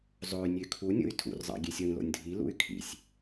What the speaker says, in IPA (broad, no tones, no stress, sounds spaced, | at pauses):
zˤ o y̯ nʲ ø kʰ u nʲ o̰ y̯ tʰ ṵ r zˤ ɑ̰ ɡʲ e sʲ w ĩ l o̰ nʲ dʱ i l ṵ y̯ kʰ ḭ sʲ